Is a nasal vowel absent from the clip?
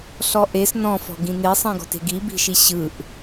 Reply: no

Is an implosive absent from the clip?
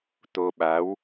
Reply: no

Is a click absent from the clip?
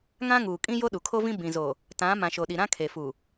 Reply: yes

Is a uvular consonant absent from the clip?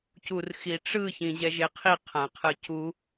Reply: no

